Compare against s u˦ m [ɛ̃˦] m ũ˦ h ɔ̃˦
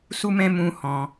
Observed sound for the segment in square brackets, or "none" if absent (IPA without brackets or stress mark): ɛ̃˦